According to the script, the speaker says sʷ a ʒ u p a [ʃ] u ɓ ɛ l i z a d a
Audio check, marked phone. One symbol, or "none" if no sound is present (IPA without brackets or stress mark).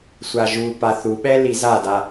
θ